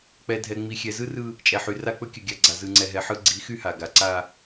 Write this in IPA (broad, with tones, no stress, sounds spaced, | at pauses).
k͡p ɛ˨ dʱ ɛ˨ ŋ͡m i˨ xʲ ɛ˨ z ɯ˦ r ɯ˦ | t͡ʃʼ ɛ˨ ħ y˨ r a˦ k͡p ɵ˦ kʲ ɵ˨ ɡʲ a˨ ɡ͡ǀ a˨ z ɯ˨ ŋ͡ǀ ɛ˨ ɦ ɛ˨ ħ ɯ˦ ɡ͡ǀ i˨˦ x y˦ h a˨ ɡ a˨ ǀ a˦